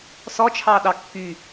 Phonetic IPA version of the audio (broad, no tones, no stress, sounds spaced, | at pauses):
s ɔ t͡ʃʰ ɑ ɗ ɑ kː y